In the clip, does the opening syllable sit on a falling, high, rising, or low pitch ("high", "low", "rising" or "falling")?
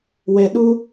low